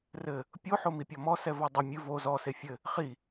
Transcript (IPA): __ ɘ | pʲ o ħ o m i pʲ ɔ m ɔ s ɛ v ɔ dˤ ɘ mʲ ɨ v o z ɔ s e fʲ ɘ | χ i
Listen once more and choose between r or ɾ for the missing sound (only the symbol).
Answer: r